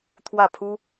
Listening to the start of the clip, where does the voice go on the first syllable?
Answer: falling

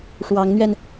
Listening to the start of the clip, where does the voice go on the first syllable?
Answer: rising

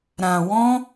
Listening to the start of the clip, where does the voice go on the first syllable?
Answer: low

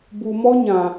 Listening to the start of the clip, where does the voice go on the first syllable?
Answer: low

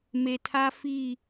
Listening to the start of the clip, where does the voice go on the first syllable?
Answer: low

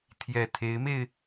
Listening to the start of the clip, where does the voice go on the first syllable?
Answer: low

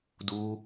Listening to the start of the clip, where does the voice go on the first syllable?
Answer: high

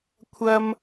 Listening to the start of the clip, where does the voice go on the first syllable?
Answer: high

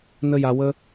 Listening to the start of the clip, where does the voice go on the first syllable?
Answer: high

